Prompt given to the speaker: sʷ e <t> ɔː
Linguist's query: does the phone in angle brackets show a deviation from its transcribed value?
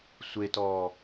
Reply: no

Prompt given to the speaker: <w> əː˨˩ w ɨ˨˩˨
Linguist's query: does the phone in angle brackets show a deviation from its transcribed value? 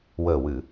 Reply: no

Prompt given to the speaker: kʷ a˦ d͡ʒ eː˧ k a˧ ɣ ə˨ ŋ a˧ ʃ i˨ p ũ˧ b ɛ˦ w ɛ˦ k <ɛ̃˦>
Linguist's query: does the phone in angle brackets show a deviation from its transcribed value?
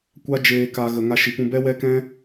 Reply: no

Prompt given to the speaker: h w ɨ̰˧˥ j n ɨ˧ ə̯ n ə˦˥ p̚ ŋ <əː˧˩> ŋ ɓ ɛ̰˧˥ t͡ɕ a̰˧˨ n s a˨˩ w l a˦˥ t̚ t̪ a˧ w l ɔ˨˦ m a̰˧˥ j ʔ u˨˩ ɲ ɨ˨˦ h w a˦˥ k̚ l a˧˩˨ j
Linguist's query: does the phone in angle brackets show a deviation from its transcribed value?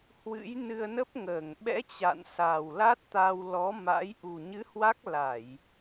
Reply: no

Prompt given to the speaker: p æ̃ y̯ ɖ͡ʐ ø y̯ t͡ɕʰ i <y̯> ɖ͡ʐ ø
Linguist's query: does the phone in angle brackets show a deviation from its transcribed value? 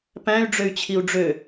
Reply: yes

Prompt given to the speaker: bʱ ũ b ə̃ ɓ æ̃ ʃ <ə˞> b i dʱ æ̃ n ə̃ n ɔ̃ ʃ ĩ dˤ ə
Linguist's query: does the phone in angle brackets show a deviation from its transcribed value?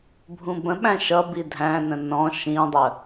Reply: yes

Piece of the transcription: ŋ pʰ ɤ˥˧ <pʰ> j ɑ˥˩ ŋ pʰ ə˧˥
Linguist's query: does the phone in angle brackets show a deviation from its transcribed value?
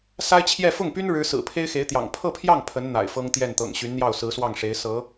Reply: no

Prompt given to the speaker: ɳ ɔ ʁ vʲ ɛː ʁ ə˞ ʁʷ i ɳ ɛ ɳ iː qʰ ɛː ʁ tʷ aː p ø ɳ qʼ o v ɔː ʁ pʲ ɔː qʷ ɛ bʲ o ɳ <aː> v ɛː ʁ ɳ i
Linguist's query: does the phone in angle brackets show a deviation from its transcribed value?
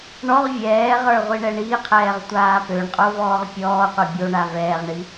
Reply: yes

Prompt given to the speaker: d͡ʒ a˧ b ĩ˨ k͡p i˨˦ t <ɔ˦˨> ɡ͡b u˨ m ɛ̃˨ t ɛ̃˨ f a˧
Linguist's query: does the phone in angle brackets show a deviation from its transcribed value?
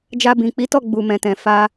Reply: no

